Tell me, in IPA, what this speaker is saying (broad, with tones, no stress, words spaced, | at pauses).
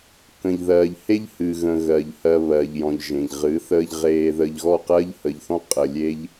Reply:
kə̃˨ʎðɜː˨ʎ he˧ʎhɨ˨ɣə̃˨ ɣɜ˨ʎhɜ˧ βɜ˨ʎjɔ̃˨ʎʒẽ˨ʎ ʁɨ˨˦ θəː˧ʎʁeː˧ðə˧ʎ ɣɔ˦˨qɜ˦ʎhə˧ʎθɔ̃˦ qʼə˧ lʲe˦ʎ